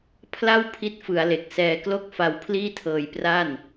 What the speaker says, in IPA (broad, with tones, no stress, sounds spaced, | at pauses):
pʰ l a˥˩ w pʰ i˥˩ t̚ f ɯ˩˦ a̯ l e˨˩ k̚ s ɛː˧ k l o˥˩ k̚ f a˧ w pʰ l iː˥˩ tʰ ɤː˧ j p r a˥˩ n